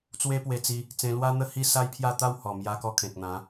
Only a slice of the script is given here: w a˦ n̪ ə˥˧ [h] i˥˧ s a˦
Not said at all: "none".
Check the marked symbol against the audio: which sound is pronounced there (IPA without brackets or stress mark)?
h